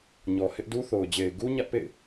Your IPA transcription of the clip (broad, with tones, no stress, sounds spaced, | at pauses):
ɲ ɔ˨ h ɪ˦ ʔ d u˦ θ o˨ ʊ̯ d͡ʑ e˨ ɪ̯ ɡ u˦ ɲ ä˦ ʔ p ḛ˦˨ ɪ̯